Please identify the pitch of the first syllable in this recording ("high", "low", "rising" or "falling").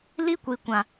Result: high